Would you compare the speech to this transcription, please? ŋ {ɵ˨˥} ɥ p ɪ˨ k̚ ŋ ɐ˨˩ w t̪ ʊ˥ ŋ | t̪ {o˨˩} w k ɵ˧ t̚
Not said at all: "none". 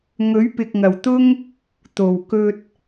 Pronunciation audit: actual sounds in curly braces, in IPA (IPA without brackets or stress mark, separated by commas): ɵ˨˥, o˨˩